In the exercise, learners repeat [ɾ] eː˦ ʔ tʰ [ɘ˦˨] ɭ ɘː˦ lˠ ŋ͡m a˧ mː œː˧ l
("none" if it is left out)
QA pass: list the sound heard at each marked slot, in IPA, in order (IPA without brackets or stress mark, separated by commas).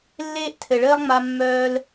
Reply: lː, ɘ˨